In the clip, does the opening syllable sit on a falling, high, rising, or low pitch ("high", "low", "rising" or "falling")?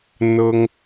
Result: high